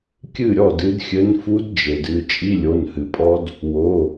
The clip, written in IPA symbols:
kʲ ɨ˥˩ ɾʲ ɔ˥˩ d ɨ˧˥ d xʲ ɘ˧˥ n f u˧˥ d d͡ʒ e˩ d ɨ˩˧˩ t͡ʃʼ i˧˥˧ lʲ o˩˧˩ n h ɨ˩ pʼ ɔ˧˥ d | w o˩˧˩

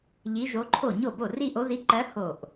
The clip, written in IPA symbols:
ʎ i˧˥ ʒ o˧˥ ǃʰ o˥˩ ɲ o˥˩ b o˥˩ r i˥˧ ʔ o˧˥ ð i˧˥ ǃ ɜ˧˥ h o˧˩ ʔ

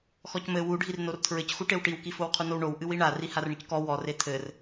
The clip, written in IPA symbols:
x ɔ c m ɘ w u ɖʱ i r n o r tʰ ɹ ɘ c x u ʈ e w ʈ i w k i f o w qʰ u n o w ɳ o w ʔ ɨ w i ɳ a r i h a r ɳ ɨ c k ɔ w ɔ r e tʰ ɘ r

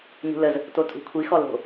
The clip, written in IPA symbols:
ɲ ṳ l ə z | t o tʼ ṳ kʷʰ i x ɔ l o̤

